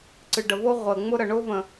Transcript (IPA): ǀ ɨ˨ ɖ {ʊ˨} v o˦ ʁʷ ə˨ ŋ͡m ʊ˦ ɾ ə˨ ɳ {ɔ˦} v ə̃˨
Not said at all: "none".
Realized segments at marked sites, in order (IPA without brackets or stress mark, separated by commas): ə˨, ʊ˦